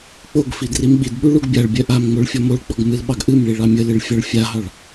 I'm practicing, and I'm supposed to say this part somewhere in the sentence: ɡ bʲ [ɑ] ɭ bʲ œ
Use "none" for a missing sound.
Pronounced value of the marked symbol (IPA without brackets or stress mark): a